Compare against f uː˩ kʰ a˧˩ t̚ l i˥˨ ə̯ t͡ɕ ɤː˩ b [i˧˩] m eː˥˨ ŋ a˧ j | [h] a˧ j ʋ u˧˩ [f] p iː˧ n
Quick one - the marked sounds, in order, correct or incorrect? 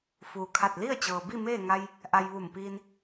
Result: incorrect, incorrect, incorrect

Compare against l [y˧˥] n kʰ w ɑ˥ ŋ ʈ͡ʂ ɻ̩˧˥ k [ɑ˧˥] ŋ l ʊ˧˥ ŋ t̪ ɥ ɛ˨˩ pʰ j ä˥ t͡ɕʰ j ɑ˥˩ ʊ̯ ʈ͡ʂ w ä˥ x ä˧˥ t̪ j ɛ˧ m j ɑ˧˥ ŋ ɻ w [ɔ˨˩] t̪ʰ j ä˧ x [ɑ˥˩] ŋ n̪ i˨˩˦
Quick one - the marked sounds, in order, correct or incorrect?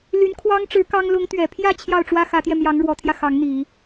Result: correct, incorrect, incorrect, incorrect

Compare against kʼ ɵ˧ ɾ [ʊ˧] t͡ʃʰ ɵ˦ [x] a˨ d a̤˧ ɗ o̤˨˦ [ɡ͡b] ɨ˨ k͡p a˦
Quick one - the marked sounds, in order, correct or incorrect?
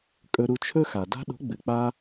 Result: incorrect, correct, correct

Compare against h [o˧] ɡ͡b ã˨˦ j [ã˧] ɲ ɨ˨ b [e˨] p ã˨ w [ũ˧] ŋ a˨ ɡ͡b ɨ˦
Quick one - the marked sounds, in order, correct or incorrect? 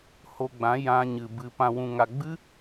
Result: correct, correct, incorrect, incorrect

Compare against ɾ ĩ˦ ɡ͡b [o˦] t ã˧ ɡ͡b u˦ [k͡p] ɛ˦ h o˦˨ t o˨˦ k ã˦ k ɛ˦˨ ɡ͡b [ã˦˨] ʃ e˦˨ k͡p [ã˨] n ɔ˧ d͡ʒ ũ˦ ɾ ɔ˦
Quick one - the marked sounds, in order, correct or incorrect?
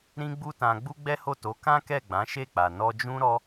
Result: incorrect, incorrect, incorrect, incorrect

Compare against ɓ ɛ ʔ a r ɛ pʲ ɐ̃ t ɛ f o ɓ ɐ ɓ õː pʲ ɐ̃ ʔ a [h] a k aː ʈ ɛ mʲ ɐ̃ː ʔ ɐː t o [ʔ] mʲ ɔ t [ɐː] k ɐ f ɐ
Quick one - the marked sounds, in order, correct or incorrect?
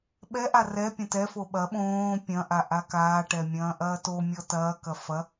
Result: incorrect, incorrect, correct

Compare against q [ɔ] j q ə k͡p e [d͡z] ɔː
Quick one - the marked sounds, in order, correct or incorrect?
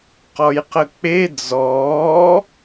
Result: correct, correct

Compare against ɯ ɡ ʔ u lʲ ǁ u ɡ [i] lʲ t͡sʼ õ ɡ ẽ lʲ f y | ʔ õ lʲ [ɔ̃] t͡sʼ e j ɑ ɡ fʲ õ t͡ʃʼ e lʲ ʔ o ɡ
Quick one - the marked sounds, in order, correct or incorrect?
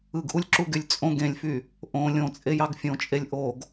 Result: incorrect, incorrect

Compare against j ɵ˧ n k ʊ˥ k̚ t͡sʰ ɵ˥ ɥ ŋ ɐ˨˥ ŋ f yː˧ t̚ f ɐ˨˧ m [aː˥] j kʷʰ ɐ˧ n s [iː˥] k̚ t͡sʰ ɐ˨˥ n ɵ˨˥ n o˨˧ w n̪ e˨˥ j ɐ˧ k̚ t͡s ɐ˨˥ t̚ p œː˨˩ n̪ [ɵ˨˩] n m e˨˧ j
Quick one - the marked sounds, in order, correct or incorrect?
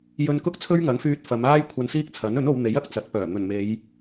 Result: correct, correct, correct

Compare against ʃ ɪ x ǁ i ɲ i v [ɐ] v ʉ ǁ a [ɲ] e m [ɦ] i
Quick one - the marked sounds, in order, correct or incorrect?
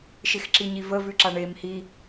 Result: incorrect, incorrect, incorrect

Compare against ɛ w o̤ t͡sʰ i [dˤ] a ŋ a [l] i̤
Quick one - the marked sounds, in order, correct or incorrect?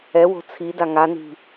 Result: incorrect, incorrect

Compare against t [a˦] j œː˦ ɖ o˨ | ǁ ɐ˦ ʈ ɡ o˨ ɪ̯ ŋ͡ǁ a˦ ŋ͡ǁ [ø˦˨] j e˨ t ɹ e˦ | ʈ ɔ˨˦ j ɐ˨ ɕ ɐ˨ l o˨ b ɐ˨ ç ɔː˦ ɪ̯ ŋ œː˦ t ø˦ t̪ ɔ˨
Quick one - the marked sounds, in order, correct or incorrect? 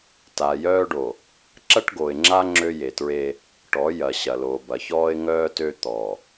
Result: incorrect, incorrect

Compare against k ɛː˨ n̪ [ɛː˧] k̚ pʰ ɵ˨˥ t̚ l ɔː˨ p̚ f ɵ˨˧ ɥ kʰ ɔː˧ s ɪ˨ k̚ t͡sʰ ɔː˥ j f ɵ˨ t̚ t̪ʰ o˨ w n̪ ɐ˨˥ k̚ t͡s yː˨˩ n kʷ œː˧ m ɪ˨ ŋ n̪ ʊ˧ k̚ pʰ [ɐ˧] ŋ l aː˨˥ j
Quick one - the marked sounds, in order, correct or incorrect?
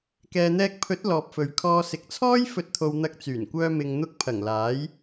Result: correct, incorrect

